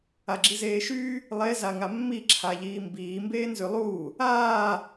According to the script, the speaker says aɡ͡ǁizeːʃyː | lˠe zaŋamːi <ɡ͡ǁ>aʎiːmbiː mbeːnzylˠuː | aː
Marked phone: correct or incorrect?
incorrect: ǁʰ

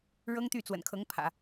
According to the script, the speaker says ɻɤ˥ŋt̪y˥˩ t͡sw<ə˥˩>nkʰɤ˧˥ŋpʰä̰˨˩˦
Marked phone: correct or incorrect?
incorrect: ə̰˨˩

